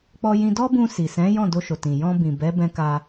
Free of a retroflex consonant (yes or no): yes